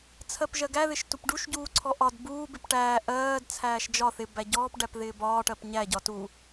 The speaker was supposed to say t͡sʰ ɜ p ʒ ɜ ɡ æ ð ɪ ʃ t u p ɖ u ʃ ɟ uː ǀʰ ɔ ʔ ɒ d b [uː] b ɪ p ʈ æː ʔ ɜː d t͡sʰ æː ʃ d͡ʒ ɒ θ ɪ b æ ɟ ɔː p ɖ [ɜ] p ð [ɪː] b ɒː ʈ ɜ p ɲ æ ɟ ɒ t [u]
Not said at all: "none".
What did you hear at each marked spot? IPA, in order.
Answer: uː, æ, ɪː, u

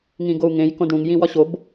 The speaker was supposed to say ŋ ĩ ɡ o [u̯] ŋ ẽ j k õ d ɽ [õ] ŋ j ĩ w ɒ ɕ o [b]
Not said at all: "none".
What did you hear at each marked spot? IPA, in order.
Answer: u̯, ũ, b

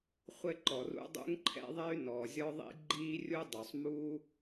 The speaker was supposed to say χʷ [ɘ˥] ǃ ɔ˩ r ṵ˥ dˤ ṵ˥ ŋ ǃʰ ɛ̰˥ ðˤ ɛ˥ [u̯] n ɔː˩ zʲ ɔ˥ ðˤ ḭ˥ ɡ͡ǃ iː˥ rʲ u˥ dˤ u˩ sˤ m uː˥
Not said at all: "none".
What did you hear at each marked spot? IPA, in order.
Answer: ɘ˥, y̯

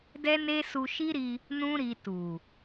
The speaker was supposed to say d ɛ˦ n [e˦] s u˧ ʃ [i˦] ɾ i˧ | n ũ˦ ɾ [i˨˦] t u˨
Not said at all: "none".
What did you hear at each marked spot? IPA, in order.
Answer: e˦, i˦, i˧

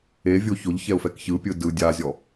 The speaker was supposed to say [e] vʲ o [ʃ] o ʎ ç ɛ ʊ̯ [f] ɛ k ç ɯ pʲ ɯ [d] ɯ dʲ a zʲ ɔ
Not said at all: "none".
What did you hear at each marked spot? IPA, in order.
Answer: e, ç, f, d

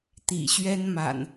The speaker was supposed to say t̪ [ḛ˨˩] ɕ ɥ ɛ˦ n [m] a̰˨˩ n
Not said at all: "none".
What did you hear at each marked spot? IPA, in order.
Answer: ḭ˨˩, m

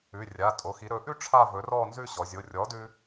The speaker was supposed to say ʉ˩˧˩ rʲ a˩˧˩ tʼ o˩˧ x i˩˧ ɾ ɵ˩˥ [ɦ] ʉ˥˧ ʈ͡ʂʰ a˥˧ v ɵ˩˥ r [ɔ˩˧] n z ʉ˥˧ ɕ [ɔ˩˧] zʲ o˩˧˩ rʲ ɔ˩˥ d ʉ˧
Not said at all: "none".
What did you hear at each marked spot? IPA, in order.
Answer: ʔ, ɔ˥˧, ɔ˩˧

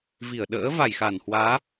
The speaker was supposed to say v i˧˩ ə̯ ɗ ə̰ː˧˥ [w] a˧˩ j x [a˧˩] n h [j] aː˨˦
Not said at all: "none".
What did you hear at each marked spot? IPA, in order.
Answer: v, a˧˩, w

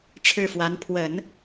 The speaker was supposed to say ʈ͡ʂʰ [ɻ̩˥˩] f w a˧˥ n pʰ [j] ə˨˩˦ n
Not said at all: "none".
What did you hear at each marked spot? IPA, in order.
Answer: ɻ̩˥˩, w

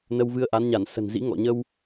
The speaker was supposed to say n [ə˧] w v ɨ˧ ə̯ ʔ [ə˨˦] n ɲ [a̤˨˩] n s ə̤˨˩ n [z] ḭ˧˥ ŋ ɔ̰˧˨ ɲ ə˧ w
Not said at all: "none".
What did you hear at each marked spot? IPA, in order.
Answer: ə˧, a˨˦, a˧˩, z

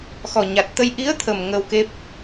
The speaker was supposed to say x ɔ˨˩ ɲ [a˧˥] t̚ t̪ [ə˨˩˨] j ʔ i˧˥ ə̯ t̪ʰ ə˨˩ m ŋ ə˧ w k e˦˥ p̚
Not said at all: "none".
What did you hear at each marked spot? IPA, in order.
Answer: a˨˩, ə˧

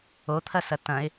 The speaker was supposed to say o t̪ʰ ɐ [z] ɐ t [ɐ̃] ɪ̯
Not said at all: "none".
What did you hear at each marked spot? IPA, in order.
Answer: s, ɐ̃

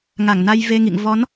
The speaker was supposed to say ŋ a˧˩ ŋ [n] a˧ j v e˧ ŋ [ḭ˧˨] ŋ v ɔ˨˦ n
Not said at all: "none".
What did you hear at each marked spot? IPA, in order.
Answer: n, ḭ˧˨

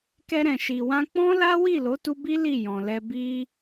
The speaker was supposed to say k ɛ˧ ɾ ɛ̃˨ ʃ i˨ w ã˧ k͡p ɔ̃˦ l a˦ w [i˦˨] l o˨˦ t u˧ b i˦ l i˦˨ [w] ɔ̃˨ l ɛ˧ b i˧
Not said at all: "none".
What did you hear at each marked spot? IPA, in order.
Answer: i˦˨, j

